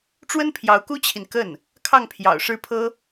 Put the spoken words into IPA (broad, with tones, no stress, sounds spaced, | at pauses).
ʈ͡ʂ w ə˥ n pʰ j ɑ˧˥ ʊ̯ k u˥ t͡ɕʰ i˨ n k ə˥˩ n | kʰ ɑ˥˩ ŋ pʰ j ɑ̰˨˩ ʊ̯ ʂ ɻ̩˥˩ pʰ ɤ˥